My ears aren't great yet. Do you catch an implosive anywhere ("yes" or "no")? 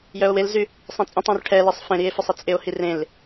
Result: no